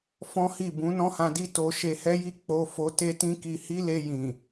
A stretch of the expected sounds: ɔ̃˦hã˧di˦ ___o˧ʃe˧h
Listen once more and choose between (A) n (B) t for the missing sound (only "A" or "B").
B